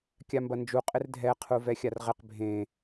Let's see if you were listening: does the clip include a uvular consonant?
yes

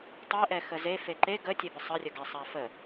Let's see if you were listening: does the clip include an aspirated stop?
no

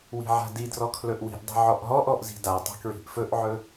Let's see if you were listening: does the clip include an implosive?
no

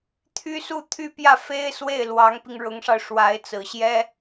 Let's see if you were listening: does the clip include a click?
no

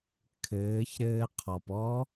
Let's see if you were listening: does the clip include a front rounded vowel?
no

